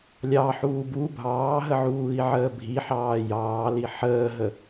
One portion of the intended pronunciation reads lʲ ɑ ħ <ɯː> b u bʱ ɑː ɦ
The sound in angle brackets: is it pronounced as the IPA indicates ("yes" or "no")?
no